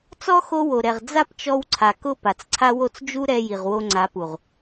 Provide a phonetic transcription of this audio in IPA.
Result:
t͡s ɔ˦ x o˦ w o˨ ɾ ɛ˨ ʁ d͡z a˦ p t͡ʃ ɔ˧ w ǀʰ a˨ k ʊ˦˨ p a˨ t͡s ǀʰ a˦ w o˦ t͡s d͡ʒ u˦ ɾ ɛ˧ j i˨ ʁ w o˧ ŋ͡ǀ a˨˦ p u˨ ʁ

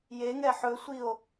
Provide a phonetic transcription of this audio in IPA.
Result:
j e ŋ ɛ ħ ɵ sʷ i o̯

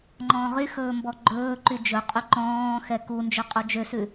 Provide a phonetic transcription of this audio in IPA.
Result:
ŋ͡ǃ ɔ̃ː ʁ y x ɵː m b ɔ ɡ͡ǃ ɵː ǃ y d͡ʒ ɵ qʼ y ǃ ɔ̃ː x ɛ k u n d͡ʒ ø qʼ o d͡ʒ ø s ʉ

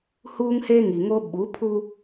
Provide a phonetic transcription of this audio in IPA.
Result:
h uː˦ ŋ h eː˦ ŋ i˨ ŋ o˦ ɓ u˨˦ pʰ u˦

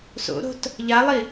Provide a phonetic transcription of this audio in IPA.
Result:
s o̰ ɾ o̤ t | ʎ a lˠ i

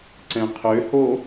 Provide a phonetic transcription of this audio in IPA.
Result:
ǀ ɛ̃ qʰ ø h o

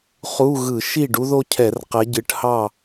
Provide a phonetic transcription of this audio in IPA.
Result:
χ u˧˥˧ ɣ ɯ˧˩˧ ʃ i˥˨ ɖ u˥ ð o˥ cʰ ɛ˧˩˧ r q ɛ˨˦ ɟ ɨ˨˦ ʈ h ɑ˥˨

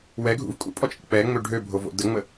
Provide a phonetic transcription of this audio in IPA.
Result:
w ɛ ɡʱ ṵ v kʼ ṵ pʼ ɔ t͡ʃʼ ə̰ k͡p ɛ ŋ͡m ø ɖʱ ø bʱ o v o̰ d ə ŋ͡m ə

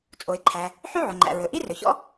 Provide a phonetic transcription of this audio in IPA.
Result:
t͡sʼ o˩ ɪ̯ ǃʰ æ˩ | ħ y˥ ʕ o˩ ŋ͡ǃ æ̰˩ ɹ ɵ˩ ʔ i˥ r ɵ˩ ç ɔ̰˥

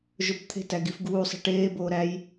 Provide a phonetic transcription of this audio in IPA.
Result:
ʒ o b t̪ʰ e̤ t æ ɡ i f ɡ uː sˤ i̤ ʈ eː b oː ɾ æ j

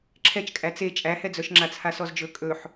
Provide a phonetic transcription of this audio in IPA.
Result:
ǁʰ ɛ t͡ʃ kʼ æ t͡s e t͡ʃʼ æ h ɛ d͡z œ ʃ ŋ͡ǁ a t͡sʰ a s ɔ z d͡ʒ ɵ kʼ ɵ ħ

